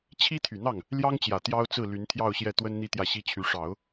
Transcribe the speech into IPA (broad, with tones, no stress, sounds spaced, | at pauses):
t͡ɕʰ i˥ t̪ʰ y˨˩ n̪ ɑ˥˩ ŋ | l j ɑ˥ ŋ t͡ɕ j ä˨˩ t̪ j ɑ˥ ʊ̯ t͡s ɹ̩˥˩ l y˧˥ n t̪ʰ j ɑ˥˧ ʊ̯ ɕ j ɛ˥˩ t̪ w ə˥ n n̪ i˥ t̪ j ä˥˩ ɕ i˥ t͡ɕʰ y˧˥ ʂ ɑ˨˩˦ ʊ̯